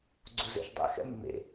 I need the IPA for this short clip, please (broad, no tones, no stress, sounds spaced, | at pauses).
ɡ͡ǀ u z ḛ ʃ dˤ ɛ̰ x ɛ̰ mː ḛ